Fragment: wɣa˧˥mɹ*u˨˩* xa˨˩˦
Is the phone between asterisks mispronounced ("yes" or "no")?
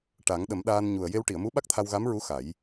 yes